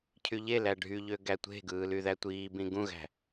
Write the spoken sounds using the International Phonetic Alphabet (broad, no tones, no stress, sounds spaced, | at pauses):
cʰ y ʎ e l æ ɖʱ y ʎ ø ɡ æ tʷ e̤ ɡ ɯː l y ð æ tʷ iː b ĩ ɡ ũ ɣ æ̤